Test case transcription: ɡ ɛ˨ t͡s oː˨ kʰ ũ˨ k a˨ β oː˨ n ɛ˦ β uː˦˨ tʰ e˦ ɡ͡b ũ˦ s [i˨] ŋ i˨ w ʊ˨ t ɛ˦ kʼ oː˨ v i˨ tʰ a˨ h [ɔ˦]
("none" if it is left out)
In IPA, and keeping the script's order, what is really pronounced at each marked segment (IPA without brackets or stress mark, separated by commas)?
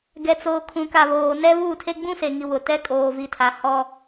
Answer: e˨, ɔ˦